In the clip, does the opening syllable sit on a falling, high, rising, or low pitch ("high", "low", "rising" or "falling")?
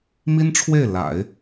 high